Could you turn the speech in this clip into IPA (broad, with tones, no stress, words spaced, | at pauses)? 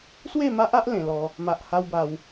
swe˥˧ma˦ʔa˦ʔ lẽ˧lɔ˦ | ma˦ʔ ha˦wba˧w